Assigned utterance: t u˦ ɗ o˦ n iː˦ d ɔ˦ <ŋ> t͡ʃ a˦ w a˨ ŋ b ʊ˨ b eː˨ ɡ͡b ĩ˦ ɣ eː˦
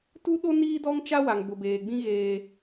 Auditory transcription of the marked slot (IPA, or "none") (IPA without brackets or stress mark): ŋ